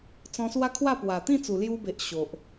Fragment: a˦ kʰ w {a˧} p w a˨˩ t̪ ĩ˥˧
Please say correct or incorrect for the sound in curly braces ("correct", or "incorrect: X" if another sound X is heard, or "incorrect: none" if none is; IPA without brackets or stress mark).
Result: incorrect: a˥˧